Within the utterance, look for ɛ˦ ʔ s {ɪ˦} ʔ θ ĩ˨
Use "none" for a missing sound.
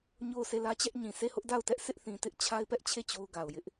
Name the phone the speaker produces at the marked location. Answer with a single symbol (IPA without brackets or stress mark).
ɪ˦